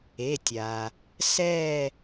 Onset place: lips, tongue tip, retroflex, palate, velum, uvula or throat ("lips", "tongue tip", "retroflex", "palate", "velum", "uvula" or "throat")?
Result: tongue tip